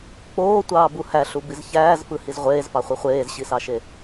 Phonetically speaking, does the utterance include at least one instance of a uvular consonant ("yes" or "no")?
yes